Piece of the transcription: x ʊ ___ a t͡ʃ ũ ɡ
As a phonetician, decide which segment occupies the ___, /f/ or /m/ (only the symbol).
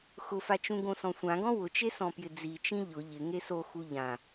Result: f